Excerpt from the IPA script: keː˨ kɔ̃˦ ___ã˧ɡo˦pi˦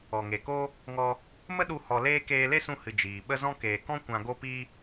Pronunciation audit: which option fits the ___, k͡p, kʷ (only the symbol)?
kʷ